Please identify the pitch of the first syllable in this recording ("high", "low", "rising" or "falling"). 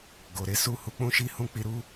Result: low